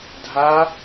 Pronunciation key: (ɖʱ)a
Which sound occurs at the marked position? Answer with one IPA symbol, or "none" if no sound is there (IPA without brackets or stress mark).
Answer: dʱ